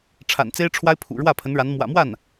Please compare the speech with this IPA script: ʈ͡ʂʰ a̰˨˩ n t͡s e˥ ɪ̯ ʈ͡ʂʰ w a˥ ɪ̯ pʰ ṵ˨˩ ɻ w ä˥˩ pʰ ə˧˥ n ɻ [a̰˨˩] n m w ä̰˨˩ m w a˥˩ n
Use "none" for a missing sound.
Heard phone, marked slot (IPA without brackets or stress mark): a˧˥